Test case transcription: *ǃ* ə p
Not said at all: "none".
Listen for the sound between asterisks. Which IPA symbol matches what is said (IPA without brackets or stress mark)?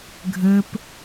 ɡʱ